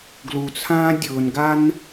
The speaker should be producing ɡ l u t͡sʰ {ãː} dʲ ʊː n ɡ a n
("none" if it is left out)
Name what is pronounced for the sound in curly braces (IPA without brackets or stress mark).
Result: ãː